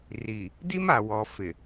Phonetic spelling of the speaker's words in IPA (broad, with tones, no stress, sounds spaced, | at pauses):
r i˨ | d i˦ m a˨ w ɔ˨ f ɪ˨